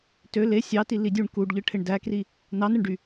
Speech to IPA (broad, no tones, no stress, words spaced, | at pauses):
tø le sʲɑti lidʲuɳ kuɖʎɯ ʈʰeɳdækri | nɑnɯɳɖy